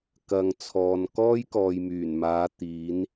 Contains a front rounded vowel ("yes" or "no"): yes